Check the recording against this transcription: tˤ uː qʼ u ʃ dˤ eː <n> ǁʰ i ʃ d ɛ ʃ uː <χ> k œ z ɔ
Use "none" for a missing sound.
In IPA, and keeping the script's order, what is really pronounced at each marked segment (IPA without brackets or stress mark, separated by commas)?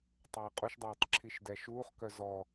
tˤ, χ